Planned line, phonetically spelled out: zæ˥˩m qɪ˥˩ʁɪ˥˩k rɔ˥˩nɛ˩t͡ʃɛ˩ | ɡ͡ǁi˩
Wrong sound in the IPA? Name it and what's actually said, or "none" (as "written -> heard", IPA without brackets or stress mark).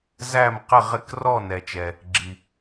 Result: none